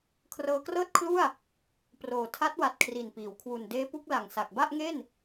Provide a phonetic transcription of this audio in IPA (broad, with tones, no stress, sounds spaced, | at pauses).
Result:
kʰ r ɤː˧ k r ɤː˥˩ t̚ kʰ l u˥˩ a̯ | p r oː˨˩ tʰ a˦˥ t̚ w a˨˩ t̚ kʰ r i˨˩ n p iː˩˦ w kʰ w u˨˩ n d eː˦˥ p u˦˥ k̚ l a˨˩ ŋ s a˨˩ k̚ b a˥˩ ʔ ŋ e˥˩ n